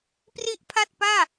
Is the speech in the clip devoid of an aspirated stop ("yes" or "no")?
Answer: no